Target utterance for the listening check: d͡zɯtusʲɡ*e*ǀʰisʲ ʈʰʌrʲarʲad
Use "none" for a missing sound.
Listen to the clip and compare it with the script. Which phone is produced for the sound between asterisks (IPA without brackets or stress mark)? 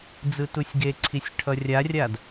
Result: e